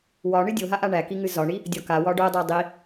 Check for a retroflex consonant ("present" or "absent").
present